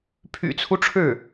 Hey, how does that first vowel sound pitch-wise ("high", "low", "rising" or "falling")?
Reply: low